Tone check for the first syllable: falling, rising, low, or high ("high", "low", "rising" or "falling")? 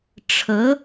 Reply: rising